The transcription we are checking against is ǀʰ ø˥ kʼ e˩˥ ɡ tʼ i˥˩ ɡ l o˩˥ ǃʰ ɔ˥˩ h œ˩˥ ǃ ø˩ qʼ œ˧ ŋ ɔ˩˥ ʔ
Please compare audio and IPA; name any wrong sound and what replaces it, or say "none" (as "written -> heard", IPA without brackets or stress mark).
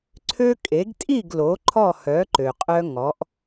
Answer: none